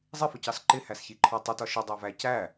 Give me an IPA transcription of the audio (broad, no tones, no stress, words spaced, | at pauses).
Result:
zˤɪfʊcɑs ǃɪhæsçiǃʰɔ tˤətɒ ʃədˤɑvæ cæ